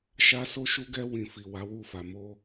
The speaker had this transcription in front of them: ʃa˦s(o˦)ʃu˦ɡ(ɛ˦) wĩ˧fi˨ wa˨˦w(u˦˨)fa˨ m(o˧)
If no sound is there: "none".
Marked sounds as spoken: o˦, ɛ˦, u˦˨, o˧

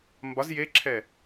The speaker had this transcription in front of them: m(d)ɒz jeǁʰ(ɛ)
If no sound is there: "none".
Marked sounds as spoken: b, ɛ

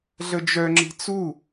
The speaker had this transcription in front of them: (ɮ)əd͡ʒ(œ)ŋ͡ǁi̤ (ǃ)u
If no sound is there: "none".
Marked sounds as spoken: ɮ, œ, t͡s

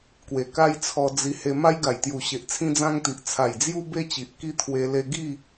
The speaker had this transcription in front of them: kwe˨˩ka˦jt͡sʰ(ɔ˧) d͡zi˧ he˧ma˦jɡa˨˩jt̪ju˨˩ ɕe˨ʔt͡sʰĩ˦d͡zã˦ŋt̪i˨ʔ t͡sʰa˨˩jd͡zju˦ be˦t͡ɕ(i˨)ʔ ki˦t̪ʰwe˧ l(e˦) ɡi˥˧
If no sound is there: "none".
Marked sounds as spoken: ɔ˧, i˨, e˧

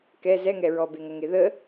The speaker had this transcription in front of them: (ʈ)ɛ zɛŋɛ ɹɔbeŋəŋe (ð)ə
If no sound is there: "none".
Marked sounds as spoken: k, ð

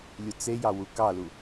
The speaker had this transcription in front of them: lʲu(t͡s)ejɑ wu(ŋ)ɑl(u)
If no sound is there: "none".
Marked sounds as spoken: t͡s, k, u

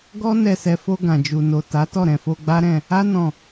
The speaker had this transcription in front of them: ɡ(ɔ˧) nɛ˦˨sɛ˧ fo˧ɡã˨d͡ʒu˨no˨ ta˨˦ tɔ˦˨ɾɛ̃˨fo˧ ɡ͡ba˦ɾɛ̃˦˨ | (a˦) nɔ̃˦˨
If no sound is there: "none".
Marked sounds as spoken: ɔ˦, a˦

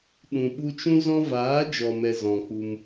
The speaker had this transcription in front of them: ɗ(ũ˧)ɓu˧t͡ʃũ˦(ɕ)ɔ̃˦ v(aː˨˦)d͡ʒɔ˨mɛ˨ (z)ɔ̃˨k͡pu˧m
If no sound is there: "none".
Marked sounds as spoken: ũ˨, z, aː˨˦, z

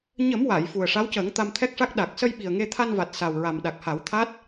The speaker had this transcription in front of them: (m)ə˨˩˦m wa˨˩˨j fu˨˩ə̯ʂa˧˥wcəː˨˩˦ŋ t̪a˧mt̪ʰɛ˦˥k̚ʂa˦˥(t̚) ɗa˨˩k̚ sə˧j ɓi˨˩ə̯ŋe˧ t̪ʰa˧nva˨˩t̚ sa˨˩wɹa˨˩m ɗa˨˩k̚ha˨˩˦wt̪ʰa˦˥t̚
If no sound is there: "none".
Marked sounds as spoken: ɲ, k̚

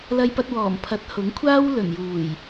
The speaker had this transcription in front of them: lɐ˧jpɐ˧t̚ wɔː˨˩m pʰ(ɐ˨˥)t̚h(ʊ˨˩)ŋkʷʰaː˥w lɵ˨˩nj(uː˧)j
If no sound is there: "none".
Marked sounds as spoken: ɐ˨˥, ʊ˨˥, uː˨˩

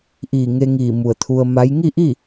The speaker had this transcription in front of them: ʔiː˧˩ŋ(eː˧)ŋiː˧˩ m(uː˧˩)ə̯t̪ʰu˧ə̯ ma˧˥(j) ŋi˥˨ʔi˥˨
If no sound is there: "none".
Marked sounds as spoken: e˧, u˧˩, j

